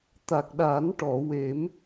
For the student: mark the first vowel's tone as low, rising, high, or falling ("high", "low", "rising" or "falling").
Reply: low